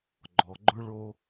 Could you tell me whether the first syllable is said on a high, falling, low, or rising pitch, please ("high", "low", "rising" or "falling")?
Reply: low